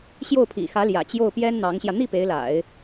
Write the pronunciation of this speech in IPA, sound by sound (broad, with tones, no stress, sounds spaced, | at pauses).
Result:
ɕ j o˥˩ ʊ̯ pʰ ḭ˨˩ x ä˧˥ l j ä̰˨˩ t͡ɕ j o˥˩ ʊ̯ p j ɛ˥ n n̪ ɑ˧˥ ŋ ɕ j ä˧ n̪ i˥˩ p e˧˥ ɪ̯ l a̰˨˩˦ ɪ̯